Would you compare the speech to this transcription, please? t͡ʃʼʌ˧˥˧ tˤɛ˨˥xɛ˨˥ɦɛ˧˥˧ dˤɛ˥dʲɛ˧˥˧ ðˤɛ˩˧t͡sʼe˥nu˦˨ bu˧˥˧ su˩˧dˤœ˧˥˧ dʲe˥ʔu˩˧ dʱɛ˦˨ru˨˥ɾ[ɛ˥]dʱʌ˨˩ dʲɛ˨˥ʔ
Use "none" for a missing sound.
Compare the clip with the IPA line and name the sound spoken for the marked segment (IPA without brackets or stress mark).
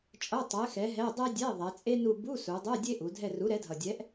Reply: ɛ˨˥